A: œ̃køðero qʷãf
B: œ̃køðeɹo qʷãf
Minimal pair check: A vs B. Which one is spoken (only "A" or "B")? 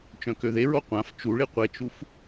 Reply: B